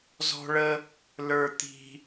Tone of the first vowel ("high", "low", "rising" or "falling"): high